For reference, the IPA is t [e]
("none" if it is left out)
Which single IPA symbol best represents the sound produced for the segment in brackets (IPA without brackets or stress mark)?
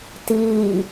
i